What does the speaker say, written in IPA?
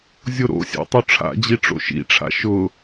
zʲ o ɾ o̰ sʲ a̰ tˤ o ʈ͡ʂʰ a̰ d͡ʑ i ʈ͡ʂ o̰ ʃ ḭ ʈ͡ʂʰ a̰ ʃ ʊ

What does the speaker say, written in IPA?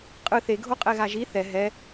qʼ ɯ θ e ɡʱ o qʼ ɛ ɣ a ʒ i θ ɛ ɦ ɛ

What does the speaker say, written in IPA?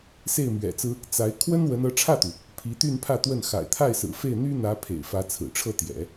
s e˥˩ ɪ̯ m ɥ ɛ̰˨˩ t͡s ɹ̩˥ | t͡s a˧˥ ɪ̯ kʰ w ə˥ n w ə˧˥ n ɤ˧˥ ʈ͡ʂʰ ä˥˩ t̪ u˩ | pʰ i˧˥ t̪ y˥˧ n pʰ ä˥˧ t̪ w ə˥˩ n x a̰˨˩ ɪ̯ t̪ʰ a˥˩ ɪ̯ s ɹ̩˨˩ f e˥˩ ɪ̯ n̪ y˥ n̪ ä˧˥ pʰ ḛ˨˩ ɪ̯ f ä˧˥ t͡sʰ ɹ̩˨˩ ʈ͡ʂʰ ɤ˥˩ t̪ j ɛ̰˨˩˦

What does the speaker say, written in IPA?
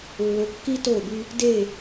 lː o˨ kː i˦ t o˦˨ b y˦ | d e˦˨

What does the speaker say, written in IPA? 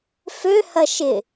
f ø h ɐ ʃ ɪ

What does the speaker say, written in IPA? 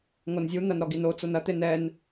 ŋ o n zʲ u n̪ ɐ n ɾ ɔ ɡ i n o t͡s o n ɐ t̪ e n ɛ n

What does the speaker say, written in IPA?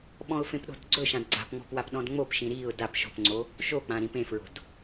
ɓ ɔ̃ ʊ̯ f ẽ p ɗ o̤ d ɡ͡ǀ ɵ ʃ ã d ɡ͡ǀ a̤ p ŋ͡m ɔ̤ p w a p ɗ ɔ̃ d ŋ͡m o p ʃ ĩ ɾ i ʊ̯ d a p ʃ o̤ p ŋ͡ǀ o | ʃ o k͡p ã ɾ ĩ p ẽ f ɹ o̤ d

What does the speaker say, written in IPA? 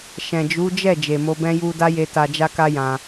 ʃ ɛ̃˨ d͡ʒ u˨˦ d͡ʒ ɛ˦˨ d͡ʒ e˨ m o˧ b ɛ̃˦ j u˦ d a˦ j e˧ t a˧ d͡ʒ a˦ k a˦ j ã˧

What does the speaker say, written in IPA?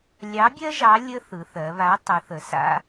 lʲ ɑ˨˥ bʲ ɜ˦ ʒ ɑ˨˥ lʲ ə˦ θ ɯ˩˧ θ ɜ˩˧ β a˨˥ tˤ ɯ˩˧ θ ə˩˧ s a̰˦

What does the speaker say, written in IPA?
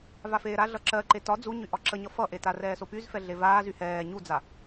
v a f eː ɾ a ɮ ʌ ǁ ɜ ǃ e t ɒ d͡z u ɲ y ʔ ɒ ǁ ə ɲ ʌ f ʌ ʔ e t a r ɛː s o p y z f ɛ ɮ e v aː z y h ɛː ɲ u d͡z a

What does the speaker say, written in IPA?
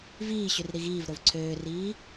v iː ɕ y r ɾ i ɣ iː v ɾ o v ǀʰ øː r iː

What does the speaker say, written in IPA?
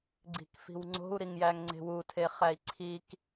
ɡ͡ǀ i̤ k f i̤ w ŋ͡ǀ o̤ u̯ ɾ i ŋ j æ ŋ ŋ͡ǀ e̤ w u tʰ e χ æ i̯ ǀʰ i k

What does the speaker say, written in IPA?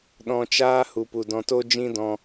ɗ ɔ̃˧ t͡ʃ aː˦ h u˨ p u˨ d ɔ̃˧ t o˦ d͡ʒ ĩ˦ d ɔ̃˧

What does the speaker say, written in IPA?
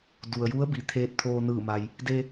d u˩ ə̯ j u˧˥ ə̯ b i˩˧ t̪ʰ eː˧˥ t̚ t̪ʰ oː˧ n ɯː˧˩ m a˩ j | d e˧

